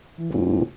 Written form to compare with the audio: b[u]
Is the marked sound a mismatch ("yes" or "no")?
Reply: yes